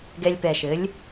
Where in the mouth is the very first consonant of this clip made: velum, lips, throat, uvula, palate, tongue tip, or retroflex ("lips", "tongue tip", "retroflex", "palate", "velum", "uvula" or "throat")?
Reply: velum